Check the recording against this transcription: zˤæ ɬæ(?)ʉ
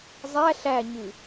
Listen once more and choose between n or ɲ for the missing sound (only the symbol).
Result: ɲ